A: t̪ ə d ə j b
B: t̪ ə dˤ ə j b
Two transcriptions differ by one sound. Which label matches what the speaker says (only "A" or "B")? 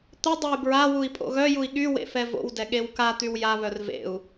B